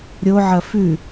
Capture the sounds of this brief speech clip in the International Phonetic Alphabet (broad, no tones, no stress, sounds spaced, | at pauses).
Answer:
ɾʲ o ʕ ɐ f ʉ